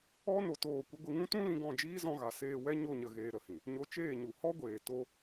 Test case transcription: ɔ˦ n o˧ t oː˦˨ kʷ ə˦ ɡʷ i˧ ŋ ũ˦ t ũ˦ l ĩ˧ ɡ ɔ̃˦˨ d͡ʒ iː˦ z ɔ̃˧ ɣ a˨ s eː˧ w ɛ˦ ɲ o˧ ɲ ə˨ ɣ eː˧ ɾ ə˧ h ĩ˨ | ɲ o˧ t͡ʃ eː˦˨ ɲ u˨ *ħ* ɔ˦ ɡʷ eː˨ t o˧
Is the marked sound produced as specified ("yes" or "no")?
no